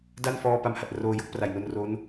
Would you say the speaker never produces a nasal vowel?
yes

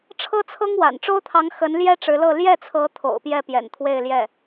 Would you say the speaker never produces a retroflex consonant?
no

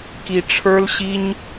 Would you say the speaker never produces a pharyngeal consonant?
yes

